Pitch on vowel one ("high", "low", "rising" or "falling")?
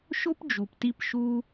high